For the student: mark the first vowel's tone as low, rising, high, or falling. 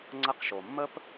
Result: high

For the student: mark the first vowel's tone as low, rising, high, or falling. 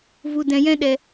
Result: low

